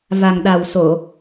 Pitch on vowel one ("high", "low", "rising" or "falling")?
low